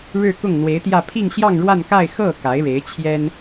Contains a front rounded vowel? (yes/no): no